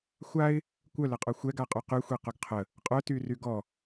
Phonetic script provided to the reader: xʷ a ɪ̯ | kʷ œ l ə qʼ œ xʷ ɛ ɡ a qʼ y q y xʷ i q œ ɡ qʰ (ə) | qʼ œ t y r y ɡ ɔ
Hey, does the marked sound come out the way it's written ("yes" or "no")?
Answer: yes